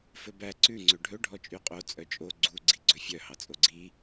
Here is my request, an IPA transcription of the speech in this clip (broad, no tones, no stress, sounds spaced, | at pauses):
f ɵ b æ ǀ ʉ ŋ͡ǀ ø ɖʱ ɵ ɖʱ ɔ t͡ʃʼ y qʼ o t͡sʼ œ t͡ʃʼ o ɡ͡ǀ u ɡ͡ǀ i ɡ͡ǀ ɵ fʲ œ h ɑ t͡sʼ o ɡ͡ǀ i